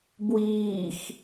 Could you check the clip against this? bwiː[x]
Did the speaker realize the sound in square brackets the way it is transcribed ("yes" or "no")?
yes